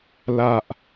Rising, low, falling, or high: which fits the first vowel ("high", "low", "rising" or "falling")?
low